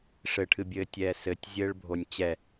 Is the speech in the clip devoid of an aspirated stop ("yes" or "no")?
no